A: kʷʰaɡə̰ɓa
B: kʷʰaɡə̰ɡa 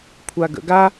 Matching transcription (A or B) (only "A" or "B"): B